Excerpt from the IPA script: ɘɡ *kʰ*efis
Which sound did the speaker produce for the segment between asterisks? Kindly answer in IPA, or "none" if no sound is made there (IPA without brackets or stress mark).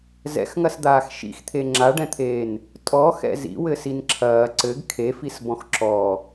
kʰ